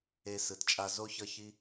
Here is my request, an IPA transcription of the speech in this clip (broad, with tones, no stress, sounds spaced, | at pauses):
e˦ s ɯ˧ t t͡ʃʼ a˦ z o˦ ç ʌ˦ ç i˦